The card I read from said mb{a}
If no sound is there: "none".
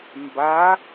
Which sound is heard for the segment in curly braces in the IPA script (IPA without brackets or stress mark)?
a